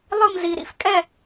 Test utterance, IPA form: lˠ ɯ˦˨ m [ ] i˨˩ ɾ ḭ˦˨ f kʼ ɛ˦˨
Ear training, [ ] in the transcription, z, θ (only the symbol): z